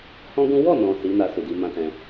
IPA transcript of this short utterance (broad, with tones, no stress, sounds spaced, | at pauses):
h ɔ̃˦ ɡ ũ˦ w ɔ˦˨ n ɔ̃˨ s i˨˦ n a˧ s u˨ d i˧ m ã˦ t ɛ̃˧